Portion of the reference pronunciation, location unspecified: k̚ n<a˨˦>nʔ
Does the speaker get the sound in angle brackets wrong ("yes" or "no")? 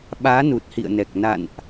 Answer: yes